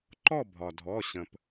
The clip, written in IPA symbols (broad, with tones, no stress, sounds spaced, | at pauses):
ǃ ɔ˥˨ bʱ ɒ˩ dʱ ɔ˩˧˩ ɕ ə̃˩ p